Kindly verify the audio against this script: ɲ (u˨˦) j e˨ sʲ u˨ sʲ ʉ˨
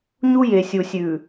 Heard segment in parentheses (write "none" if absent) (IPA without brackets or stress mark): u˦